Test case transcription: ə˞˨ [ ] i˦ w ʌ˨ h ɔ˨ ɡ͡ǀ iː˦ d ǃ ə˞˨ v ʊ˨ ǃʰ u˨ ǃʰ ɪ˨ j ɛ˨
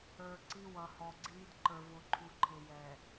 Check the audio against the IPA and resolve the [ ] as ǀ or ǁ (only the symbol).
ǀ